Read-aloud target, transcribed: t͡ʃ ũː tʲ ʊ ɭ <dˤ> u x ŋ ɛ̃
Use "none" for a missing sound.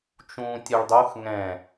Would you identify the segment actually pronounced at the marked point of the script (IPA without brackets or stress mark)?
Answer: dˤ